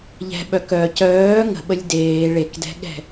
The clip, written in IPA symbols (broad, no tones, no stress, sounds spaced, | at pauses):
ʎ ɛ̤ ɓ œ k œ c œː ŋ ə̤ ɓ ə lʲ d eː ɭ e k d ɛ̤ ɠ ɛ̤